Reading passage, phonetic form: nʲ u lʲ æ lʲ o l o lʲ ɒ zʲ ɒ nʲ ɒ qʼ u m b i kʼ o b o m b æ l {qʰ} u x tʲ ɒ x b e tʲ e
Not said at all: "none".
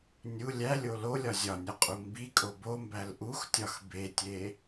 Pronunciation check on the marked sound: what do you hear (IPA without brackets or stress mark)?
ʔ